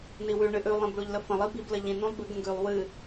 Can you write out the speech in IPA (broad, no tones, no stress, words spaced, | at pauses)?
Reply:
niwʉ ɳɨʔʉ lˠĩbɭuʎləfə̃ lˠibib ləʎĩ nũlˠbɨɡ ə̃ɡʉlˠ wɨ